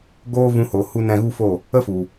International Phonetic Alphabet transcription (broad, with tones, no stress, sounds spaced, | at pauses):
ɡ oː˦ v ũ˧ h o˨ h u˧ n ɛ̃˧ ɣ u˦ f o˦˨ | ə˦ f u˨